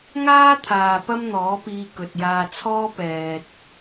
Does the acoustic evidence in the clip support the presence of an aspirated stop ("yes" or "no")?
yes